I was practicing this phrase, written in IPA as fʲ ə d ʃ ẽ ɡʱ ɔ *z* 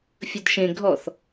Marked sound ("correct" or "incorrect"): incorrect